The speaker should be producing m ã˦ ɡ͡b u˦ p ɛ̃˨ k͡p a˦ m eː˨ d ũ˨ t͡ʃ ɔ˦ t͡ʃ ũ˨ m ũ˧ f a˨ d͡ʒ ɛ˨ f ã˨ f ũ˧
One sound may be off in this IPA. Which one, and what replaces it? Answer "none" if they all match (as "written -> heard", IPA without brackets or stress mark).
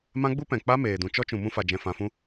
ɛ˨ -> ɛ̃˨